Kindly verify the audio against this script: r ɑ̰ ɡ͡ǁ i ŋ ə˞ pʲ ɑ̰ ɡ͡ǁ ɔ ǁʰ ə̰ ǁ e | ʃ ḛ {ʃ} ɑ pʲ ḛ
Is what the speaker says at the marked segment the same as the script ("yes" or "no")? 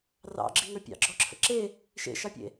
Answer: yes